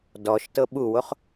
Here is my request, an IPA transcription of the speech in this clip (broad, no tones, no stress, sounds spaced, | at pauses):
d ɔ ʃ t ɤ ɓ u w o χ